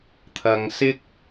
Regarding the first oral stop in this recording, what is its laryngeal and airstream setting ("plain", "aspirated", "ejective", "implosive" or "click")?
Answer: aspirated